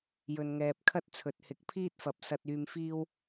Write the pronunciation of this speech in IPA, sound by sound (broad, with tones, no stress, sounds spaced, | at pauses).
j ɵ˨ n ŋ ɛː˨ p̚ kʰ ɐ˥ t̚ t͡sʰ ɵ˨ t̚ h ɪ˨˥ k̚ pʰ iː˥ t̚ f ɐ˨˥ p̚ s ɐ˧ t̚ yː˧ m f iː˥ w